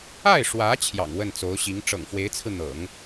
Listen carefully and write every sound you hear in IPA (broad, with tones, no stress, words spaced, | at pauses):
a˥˩ɪ̯ʂwä˧˥ t͡ɕʰjɑ̰˨˩ŋwə˥˩nt͡so˧˥ʊ̯ɕi˧˥ŋ ʈ͡ʂɤ̰˨˩ŋfwe˧˥ɪ̯t͡sʰɹ̩˧n̪ɤ̰˨˩˦ŋ